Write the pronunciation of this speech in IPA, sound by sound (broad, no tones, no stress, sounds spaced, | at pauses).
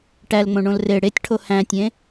ʈ æ l ŋ͡m õ ɳ õ l r e ɽ e tʲ ʈʰ o h æ̃ tʲ ẽ